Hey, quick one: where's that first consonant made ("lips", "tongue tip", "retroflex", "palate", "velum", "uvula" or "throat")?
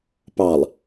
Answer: lips